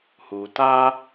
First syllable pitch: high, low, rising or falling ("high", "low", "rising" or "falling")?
low